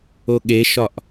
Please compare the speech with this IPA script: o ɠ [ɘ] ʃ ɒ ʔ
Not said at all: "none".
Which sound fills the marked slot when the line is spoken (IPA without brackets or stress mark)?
e